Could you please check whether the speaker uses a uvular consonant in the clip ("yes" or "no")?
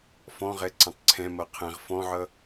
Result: yes